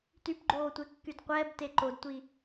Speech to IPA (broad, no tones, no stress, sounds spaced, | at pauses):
t y p ɡ͡ǃ oː tʷ e kː y d qʷ ɛː b t e ǃ o d tʷ i